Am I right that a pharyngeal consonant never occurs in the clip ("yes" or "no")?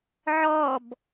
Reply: no